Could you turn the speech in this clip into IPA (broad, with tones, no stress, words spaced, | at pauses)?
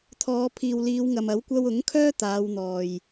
t̪ʰɔː˨˧ pʰiː˨wliː˨˧wŋɐ˨m ɐ˨˥wkʷɐ˧w ʊ˨˥ŋkʰœː˥ t̪aː˨˧wn̪ɔː˨j